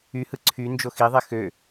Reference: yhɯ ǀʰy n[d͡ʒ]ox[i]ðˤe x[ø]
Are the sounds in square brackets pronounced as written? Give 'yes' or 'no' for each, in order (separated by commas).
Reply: yes, yes, yes